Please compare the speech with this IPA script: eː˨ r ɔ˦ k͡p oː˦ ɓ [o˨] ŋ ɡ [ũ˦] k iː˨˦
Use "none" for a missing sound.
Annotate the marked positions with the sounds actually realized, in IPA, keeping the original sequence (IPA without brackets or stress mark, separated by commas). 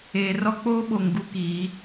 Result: o˨, u˦